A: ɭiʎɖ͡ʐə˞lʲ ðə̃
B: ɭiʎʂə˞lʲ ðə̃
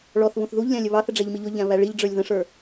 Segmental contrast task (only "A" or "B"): A